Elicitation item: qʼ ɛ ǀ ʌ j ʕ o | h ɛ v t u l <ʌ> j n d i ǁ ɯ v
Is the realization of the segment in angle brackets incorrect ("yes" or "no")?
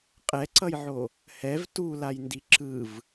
yes